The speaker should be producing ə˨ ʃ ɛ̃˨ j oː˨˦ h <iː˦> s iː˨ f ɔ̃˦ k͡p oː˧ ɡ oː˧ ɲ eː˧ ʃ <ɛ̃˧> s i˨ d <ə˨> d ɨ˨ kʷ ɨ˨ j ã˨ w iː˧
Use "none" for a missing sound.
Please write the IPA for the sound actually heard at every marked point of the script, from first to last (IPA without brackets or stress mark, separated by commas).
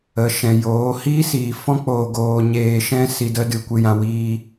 iː˦, ɛ̃˦, ə˧